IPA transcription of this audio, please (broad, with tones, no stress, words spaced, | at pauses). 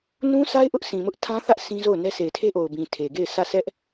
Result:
nũ˦sʰa˦ɪ̯ʔʊ˦ʔ sʰĩ˨mʊ˦ʔtʰã˦θä˦ʔ sʰĩ˦zo˦˨ʊ̯nɛ˦ se˨ɪ̯tʰe˦ʔo˨ʊ̯bĩ˨ tʰe˨ɡe˦˨ɪ̯ sä˦˨sɛ˦ʔ